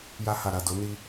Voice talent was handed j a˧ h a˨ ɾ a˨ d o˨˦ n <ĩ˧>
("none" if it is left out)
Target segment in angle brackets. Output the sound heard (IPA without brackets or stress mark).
i˧